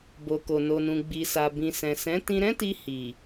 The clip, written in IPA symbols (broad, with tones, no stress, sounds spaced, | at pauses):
b o˨ k o˨ n o˨ n ũ˨ ɡ͡b i˨ s a˨ b ĩ˨ s ɛ̃˨ s ɛ̃˨˦ t ĩ˧ ɾ ɛ̃˦ t i˧ h i˨